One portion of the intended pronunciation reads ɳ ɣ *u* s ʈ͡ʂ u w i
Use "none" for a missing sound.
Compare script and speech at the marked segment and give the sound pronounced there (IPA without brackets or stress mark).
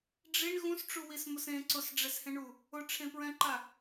ũ